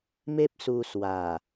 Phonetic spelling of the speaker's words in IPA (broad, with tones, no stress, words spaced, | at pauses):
me˦p̚su˧swa˨˩